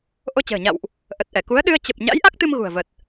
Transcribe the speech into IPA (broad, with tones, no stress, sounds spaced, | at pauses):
ʔ o˧ t͡ɕ ə̤ː˨˩ ɲ a̰˧˨ w ʔ | ʔ ə˨˩ t̚ ʔ ɛ˧˩ k u˨˦ ə̯ ɗ ɨ˧ ə̯ t͡ɕ ə˨˩ p̚ ɲ a̰˧˥ j ʔ a˦˥ k̚ t̪ ɨ˧ m ɣ ṳ˨˩ ə̯ v ə˨˩ t̚